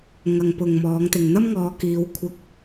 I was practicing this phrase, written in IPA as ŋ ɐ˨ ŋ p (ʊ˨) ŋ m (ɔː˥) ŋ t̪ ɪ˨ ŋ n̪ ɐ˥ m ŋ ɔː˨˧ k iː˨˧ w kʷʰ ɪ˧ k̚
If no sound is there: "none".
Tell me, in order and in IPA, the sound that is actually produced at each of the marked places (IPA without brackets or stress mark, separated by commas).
ʊ˨, ɔː˨˧